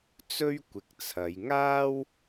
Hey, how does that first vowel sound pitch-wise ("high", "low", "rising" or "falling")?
high